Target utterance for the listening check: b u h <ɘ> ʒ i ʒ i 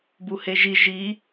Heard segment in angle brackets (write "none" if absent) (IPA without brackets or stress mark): e